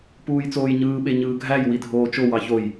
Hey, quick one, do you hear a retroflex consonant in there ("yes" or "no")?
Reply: no